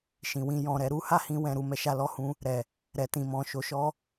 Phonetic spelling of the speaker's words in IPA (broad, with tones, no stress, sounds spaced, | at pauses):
ʃ ĩ˨ w ĩ˧ j ɔ̃˨ ɾ ɛ˧ ɾ u˦ h a˦˨ h ĩ˧ w ɛ̃˨ ɾ u˨ m ɛ˧ ʃ a˧ l ɔ˧ h ũ˧ | ɾ ɛ˨ | ɾ ɛ˨ t ĩ˨ m ɔ̃˨ ʃ o˨ ʃ ɔ˧